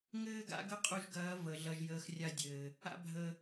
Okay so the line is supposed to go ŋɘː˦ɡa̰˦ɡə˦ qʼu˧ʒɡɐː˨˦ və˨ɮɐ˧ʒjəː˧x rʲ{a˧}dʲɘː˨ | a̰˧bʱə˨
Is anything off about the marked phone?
no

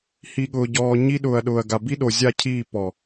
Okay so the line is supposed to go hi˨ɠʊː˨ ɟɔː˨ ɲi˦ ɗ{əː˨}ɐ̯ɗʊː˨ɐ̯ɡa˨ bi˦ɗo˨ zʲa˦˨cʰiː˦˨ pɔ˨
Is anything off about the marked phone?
yes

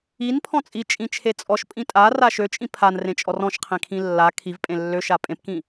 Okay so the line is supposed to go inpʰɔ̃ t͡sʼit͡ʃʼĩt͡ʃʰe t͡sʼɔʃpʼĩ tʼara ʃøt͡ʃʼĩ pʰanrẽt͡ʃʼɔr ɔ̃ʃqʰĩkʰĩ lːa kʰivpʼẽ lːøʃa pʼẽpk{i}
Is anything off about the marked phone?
yes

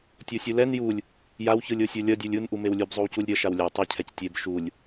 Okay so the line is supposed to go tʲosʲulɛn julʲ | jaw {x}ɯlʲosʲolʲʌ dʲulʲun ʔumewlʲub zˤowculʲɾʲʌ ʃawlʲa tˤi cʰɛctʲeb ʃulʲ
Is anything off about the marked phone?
yes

